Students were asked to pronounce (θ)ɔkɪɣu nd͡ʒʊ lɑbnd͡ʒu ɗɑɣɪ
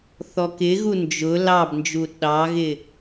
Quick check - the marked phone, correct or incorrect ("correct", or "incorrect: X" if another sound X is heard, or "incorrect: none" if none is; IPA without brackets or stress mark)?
correct